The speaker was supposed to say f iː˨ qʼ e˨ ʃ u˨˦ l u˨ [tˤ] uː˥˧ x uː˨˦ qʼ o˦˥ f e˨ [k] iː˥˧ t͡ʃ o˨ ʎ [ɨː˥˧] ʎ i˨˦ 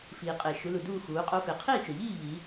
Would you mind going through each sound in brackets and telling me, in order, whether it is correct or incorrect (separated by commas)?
incorrect, incorrect, incorrect